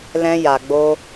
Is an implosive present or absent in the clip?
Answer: absent